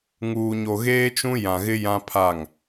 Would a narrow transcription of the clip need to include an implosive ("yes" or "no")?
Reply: no